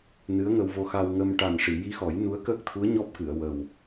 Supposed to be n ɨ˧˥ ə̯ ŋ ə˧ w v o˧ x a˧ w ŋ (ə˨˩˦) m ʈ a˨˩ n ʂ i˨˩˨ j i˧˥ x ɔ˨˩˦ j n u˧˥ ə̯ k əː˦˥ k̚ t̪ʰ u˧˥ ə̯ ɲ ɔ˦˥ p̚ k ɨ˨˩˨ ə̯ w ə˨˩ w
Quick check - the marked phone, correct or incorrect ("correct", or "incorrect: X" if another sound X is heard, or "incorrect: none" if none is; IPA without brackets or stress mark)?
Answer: incorrect: ə˧